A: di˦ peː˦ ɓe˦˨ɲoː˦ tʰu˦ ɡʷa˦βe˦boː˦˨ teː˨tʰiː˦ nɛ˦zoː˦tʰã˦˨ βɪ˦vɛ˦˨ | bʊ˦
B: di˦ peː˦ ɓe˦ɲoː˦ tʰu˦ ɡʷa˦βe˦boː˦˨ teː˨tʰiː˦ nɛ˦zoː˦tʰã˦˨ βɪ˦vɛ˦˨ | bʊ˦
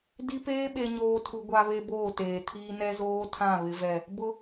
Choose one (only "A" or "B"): B